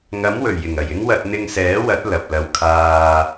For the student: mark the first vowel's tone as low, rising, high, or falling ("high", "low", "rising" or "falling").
rising